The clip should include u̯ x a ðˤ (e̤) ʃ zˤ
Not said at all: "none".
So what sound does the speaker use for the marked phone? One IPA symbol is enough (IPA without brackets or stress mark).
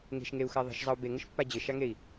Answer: i̤